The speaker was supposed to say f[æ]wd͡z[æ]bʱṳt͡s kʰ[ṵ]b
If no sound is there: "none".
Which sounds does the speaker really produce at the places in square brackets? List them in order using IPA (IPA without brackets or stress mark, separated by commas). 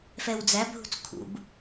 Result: ɛ, æ, ṵ